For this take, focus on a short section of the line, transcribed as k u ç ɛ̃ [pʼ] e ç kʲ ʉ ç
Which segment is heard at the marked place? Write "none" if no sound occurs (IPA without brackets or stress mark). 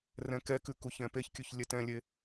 p